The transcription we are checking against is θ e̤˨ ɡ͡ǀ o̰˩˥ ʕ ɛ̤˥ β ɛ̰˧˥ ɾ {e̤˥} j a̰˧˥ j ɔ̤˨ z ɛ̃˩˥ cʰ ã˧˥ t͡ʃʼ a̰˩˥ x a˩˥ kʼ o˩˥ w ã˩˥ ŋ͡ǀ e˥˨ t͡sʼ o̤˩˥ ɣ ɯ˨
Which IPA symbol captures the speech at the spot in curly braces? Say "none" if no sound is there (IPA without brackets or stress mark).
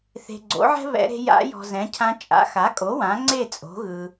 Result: e̤˥